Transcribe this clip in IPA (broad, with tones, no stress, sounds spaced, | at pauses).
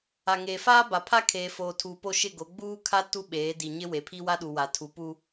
a˨ ŋ eː˨ f aː˦ b a˨ pʰ a˦ kʰ eː˨ f oː˨ tʰ uː˨ p o˦˨ ʃ ɪ˦˨ ɡ o˨˦ ɡ͡b uː˦ kʰ a˦ t u˦ ɓ eː˨˦ d i˨ ɲ ɪ˦ w e˨ pʰ i˦ w a˦ ɗ u˨ w a˨ tʰ u˨ p u˦